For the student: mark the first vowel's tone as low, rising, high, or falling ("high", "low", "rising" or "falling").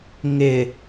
low